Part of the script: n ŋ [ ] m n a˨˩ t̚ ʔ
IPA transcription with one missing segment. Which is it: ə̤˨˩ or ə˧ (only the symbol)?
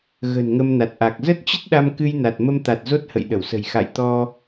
ə˧